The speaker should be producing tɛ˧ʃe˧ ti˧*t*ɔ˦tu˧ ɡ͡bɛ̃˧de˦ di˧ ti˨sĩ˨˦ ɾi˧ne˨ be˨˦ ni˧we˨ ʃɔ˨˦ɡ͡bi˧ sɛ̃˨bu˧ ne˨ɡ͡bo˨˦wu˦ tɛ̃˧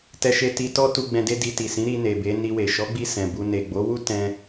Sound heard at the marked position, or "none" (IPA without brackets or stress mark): t